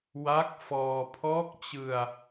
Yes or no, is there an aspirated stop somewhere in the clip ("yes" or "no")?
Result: yes